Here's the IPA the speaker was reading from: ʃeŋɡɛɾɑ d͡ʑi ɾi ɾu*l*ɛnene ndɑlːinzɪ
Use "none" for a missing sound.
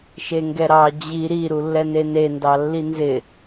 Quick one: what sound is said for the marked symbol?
lː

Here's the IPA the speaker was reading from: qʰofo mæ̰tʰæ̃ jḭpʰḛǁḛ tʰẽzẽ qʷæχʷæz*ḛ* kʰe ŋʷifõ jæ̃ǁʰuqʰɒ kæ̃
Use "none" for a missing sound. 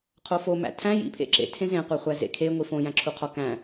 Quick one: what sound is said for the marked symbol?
ḛ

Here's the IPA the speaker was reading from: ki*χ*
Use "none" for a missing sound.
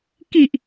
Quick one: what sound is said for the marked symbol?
ʔ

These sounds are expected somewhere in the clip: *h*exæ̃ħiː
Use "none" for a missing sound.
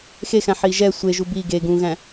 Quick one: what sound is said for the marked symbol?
x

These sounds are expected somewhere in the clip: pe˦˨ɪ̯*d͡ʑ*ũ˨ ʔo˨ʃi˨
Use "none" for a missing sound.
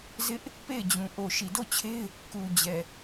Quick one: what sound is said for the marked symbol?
d͡ʑ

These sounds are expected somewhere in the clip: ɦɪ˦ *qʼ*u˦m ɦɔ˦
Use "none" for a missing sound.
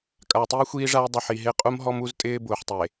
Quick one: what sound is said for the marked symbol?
qʼ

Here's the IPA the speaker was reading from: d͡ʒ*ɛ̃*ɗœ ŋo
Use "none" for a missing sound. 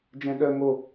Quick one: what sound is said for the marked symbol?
ɛ̃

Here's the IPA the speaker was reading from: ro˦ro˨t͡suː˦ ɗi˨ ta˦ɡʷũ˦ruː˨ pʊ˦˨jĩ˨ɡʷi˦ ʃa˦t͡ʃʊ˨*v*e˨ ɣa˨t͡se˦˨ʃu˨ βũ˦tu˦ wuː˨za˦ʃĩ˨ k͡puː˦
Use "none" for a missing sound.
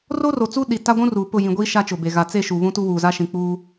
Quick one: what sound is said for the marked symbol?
b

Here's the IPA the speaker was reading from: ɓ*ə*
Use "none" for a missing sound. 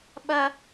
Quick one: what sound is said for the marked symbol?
ɐ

